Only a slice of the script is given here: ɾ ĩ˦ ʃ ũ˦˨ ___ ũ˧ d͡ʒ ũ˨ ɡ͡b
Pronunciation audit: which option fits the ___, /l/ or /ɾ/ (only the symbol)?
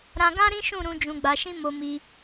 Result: ɾ